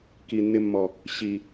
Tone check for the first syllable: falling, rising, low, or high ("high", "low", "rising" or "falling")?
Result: low